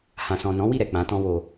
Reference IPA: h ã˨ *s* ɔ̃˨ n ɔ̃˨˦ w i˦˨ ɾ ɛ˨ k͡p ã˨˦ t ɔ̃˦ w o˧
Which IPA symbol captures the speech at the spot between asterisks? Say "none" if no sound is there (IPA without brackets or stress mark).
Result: s